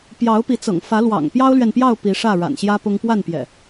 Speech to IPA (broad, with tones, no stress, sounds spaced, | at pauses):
p j ɑ˨˦ ʊ̯ p i˨˦ t͡s ɤ̰˨˩ ŋ f ä˨˦ l w ɑ̰˨˩ ŋ p j ɑ˦ ʊ̯ l ɥ ɛ˨ n p j ɑ˥˨ ʊ̯ p i˨˦ ʂ ä˥˨ ɻ a̰˨˩ n ɕ j ä˦ p ʊ˦ ŋ p w a˥˨ n p j ɛ̰˨˩